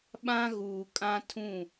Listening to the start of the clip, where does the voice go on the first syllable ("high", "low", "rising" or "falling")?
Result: high